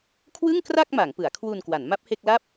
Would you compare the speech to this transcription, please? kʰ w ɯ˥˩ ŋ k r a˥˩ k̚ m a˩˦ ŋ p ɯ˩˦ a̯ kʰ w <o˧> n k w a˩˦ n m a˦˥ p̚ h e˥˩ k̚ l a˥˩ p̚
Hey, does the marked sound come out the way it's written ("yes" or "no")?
no